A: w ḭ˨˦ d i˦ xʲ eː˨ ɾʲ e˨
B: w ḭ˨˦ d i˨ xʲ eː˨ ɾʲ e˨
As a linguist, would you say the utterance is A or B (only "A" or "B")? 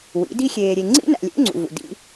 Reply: A